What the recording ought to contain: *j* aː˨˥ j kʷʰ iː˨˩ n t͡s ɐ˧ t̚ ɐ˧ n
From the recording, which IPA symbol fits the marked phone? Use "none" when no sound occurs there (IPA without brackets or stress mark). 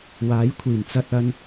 w